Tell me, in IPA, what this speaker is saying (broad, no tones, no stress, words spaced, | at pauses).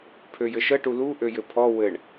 pʰøjɘʃə ʈulu ʔøjɘpʰɔ wɘɳ